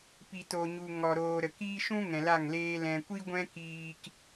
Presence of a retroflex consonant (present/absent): absent